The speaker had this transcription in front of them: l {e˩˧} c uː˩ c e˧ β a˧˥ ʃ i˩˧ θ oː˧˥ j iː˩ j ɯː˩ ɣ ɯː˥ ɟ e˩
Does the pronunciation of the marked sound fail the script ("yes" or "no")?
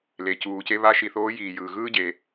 yes